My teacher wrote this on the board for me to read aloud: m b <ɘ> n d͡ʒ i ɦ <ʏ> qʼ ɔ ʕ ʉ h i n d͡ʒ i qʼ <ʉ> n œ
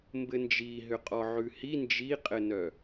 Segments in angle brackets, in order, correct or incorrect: correct, correct, incorrect: ɘ

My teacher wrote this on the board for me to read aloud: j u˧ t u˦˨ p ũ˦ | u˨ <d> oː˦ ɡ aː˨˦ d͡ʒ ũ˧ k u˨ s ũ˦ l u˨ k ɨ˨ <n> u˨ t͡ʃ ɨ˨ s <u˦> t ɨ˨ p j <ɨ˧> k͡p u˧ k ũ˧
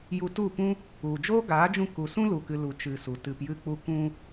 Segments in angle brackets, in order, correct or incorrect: incorrect: d͡ʒ, incorrect: l, incorrect: u˨, correct

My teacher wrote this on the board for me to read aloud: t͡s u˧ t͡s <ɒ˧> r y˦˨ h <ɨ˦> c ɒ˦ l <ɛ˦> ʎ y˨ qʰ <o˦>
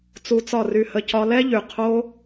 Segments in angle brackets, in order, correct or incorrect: incorrect: ɒ˦˨, incorrect: ə˦, correct, correct

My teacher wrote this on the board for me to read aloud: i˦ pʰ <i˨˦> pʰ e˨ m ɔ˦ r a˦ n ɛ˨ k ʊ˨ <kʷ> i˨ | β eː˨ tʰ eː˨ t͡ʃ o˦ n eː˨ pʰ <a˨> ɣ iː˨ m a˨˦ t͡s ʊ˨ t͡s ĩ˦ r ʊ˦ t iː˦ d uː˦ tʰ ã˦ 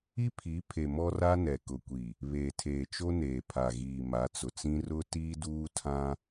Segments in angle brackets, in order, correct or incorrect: correct, correct, correct

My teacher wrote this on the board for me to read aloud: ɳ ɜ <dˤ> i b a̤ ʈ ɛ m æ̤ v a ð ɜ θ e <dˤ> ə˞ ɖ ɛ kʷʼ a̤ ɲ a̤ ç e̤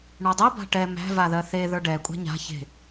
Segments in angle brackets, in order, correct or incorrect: correct, incorrect: ð

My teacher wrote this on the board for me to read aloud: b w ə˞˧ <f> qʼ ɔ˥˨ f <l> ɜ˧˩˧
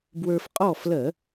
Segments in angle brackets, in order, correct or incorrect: correct, correct

